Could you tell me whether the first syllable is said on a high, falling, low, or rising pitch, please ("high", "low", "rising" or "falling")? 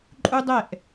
high